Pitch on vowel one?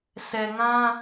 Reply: low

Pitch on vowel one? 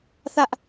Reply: high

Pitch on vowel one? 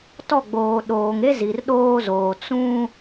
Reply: falling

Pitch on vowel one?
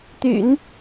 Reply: low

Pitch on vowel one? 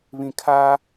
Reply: low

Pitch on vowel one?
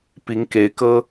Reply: rising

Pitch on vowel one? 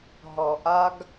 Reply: low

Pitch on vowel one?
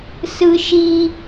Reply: low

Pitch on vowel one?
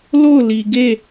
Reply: falling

